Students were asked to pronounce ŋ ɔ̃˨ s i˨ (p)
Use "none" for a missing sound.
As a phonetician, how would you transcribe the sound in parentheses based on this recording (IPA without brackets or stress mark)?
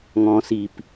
p